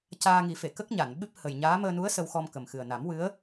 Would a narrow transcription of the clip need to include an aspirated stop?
no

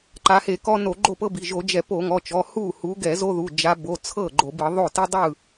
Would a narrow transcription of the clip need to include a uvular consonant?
no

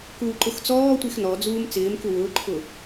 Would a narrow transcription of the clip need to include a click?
yes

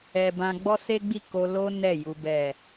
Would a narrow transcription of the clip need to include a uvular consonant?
no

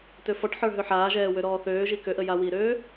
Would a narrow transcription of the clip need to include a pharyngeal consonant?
yes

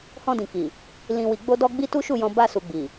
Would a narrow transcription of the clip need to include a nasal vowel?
yes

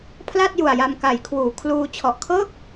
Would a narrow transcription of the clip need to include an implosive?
no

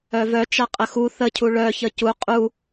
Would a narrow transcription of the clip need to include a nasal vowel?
no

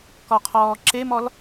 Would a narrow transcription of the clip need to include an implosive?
no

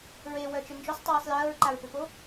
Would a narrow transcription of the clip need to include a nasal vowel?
no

